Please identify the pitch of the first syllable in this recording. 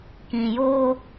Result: low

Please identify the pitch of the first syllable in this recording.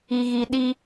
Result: low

